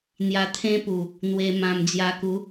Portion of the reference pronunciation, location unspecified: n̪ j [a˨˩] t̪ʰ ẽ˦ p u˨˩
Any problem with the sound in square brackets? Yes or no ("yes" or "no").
yes